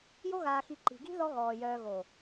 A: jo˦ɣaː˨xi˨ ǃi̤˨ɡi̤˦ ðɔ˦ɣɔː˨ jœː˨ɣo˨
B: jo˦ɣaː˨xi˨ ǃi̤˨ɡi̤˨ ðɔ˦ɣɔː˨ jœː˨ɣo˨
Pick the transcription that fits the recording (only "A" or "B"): A